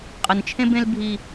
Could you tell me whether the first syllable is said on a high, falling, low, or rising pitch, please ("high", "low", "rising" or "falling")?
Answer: low